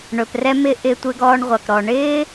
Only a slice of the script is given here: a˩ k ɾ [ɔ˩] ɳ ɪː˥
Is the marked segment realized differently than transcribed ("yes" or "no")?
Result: no